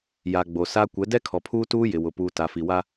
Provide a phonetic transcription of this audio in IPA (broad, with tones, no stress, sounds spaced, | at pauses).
j a˨ ɡ͡b o˨ s a˦ kʷ ɛ˨˦ d ɛ˦ kʰ ɔ˨ pʰ uː˦ t uː˦ j ɪ˨ w ʊ˨ p uː˨ t a˨ f i˨ w a˦